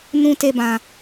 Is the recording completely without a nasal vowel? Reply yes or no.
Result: no